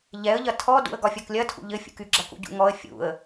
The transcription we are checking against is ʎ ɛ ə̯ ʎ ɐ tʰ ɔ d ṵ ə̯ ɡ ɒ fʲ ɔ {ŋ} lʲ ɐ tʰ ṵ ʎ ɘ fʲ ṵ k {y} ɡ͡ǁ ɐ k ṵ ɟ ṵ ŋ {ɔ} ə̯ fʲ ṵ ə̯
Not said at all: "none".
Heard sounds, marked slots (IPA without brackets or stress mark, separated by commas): k, y, ɔ